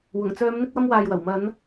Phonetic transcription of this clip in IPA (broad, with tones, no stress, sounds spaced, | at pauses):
w ʊ˨˩ ŋ t͡s œː˨˧ m n̪ ɪ˧ k̚ w ɐ˧ m w aː˨ j w ɐ˨˩ w m ɐ˨˧ n